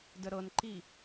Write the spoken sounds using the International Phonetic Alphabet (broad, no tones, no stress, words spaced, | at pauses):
dəɾɤnǃi